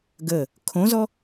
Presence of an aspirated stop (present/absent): present